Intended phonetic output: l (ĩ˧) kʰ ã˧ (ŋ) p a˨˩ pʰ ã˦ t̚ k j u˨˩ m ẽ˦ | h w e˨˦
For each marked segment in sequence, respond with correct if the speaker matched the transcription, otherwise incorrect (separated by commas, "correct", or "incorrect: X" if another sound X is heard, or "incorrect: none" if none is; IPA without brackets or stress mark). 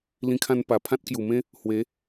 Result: correct, incorrect: n